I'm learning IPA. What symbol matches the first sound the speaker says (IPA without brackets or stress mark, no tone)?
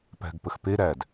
p